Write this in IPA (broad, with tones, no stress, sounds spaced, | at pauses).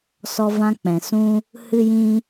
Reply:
s ɔ˧ v ã˧ k͡p ɛ̃˨ s ũ˦ | h ɨ˦ j ĩ˦